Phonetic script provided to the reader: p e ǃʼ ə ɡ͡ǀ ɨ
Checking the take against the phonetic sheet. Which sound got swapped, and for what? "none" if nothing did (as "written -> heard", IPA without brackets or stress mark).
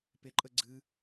none